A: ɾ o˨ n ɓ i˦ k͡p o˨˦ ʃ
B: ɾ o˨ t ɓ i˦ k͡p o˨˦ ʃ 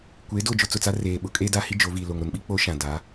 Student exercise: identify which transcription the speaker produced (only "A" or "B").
A